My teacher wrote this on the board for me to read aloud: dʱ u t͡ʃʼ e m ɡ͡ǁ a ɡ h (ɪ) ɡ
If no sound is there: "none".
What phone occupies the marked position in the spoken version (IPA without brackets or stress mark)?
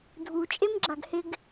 ɪ